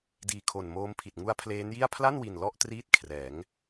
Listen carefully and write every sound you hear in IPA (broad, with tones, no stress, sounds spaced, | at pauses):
d iː˧ kʰ o˨˩ n m oː˦˥ m pʰ i˨˩ t̚ ŋ u˦˥ a̯ pʰ l eː˦˥ n j i˥˩ a̯ pʰ l a˥˩ n w i˨˩ n l ɔ˥˩ ʔ t r iː˥˩ t̚ kʰ r ɛː˩˦ ŋ